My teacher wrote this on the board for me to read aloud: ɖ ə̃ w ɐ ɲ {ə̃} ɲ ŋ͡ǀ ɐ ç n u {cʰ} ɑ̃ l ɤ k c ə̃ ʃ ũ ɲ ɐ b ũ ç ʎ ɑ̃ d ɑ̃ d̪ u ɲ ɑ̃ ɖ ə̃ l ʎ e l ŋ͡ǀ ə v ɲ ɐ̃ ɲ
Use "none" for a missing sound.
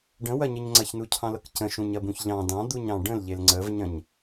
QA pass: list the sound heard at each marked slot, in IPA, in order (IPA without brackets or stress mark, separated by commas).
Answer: ə, cʰ